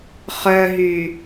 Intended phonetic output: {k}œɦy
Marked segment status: incorrect: χ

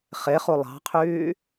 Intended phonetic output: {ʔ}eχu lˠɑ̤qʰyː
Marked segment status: incorrect: χ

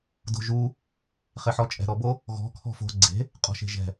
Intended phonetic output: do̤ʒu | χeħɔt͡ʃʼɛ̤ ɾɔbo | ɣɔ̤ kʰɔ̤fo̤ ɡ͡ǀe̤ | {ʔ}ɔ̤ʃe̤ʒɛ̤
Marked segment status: incorrect: qʼ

